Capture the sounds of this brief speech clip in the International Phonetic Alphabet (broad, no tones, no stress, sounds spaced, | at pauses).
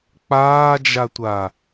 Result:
k͡p aː d͡ʒ a tʷ a